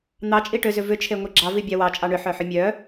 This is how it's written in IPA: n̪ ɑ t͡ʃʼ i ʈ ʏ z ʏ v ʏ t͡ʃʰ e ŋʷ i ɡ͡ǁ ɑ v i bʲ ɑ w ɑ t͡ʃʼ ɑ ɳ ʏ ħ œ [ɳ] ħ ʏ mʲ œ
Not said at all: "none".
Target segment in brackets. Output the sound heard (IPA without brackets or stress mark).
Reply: none